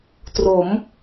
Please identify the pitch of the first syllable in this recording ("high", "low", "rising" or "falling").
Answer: rising